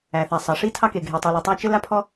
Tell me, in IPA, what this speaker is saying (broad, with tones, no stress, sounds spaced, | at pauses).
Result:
æ˩ θ æ˩ sˤ ɑ˩ ʂ i˥ tʰ ɑ˥ k e˩ ɡʱ e˩ tˤ i˩ l ɔ˩ tˤ æ˥ t͡ʃ ɘ˥ l a˥ pʰ ɔ˥